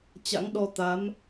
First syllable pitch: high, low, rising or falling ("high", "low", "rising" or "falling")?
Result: rising